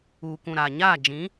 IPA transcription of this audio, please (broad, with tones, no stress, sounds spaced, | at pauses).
uː˨ k ũ˨ ɾ aː˨ ɲ aː˦˨ d͡ʒ ĩ˨˦